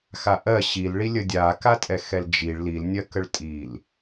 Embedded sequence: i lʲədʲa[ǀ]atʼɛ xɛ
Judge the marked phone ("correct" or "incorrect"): incorrect